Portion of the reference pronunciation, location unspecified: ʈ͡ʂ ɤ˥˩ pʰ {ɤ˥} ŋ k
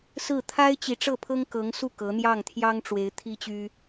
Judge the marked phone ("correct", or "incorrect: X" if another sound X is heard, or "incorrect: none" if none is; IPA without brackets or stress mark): correct